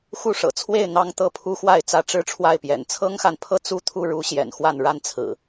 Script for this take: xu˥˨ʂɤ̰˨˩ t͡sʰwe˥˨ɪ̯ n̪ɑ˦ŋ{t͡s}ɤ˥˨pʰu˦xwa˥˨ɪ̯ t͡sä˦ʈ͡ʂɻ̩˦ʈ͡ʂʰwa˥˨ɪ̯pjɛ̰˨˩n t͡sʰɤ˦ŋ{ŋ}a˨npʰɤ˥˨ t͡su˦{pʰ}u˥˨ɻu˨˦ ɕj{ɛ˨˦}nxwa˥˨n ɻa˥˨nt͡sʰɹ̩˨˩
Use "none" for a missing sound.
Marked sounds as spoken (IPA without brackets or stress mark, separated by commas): t̪, x, t̪ʰ, ɛ̰˨˩